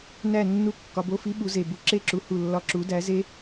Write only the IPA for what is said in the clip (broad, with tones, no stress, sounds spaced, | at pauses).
n æ˦˨ nː u˧˥˧ kː ɒ˨˦ b o˧˥˧ f i˦˥ ɓ u˨˦ z e˨ b u˨˦ ǁ e˦˨ ǁ u˨˦ h u˦˨ lː ɒ˦˥ ǁ u˨˦ d æ˨˦ z e˦˥